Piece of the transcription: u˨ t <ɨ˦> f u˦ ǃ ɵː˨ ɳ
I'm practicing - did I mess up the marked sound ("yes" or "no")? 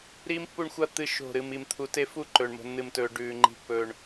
yes